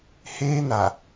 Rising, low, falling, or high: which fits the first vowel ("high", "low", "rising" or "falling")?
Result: high